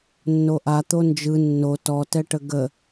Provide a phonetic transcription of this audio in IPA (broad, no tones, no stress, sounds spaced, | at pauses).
nː o ʔ a t̪ o n d͡ʒ ɯ nː o t ɔ t ɛ ʈ ə ɡ ə